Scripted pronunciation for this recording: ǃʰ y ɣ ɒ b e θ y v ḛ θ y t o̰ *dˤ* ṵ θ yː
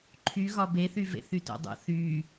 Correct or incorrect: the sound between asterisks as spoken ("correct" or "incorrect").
correct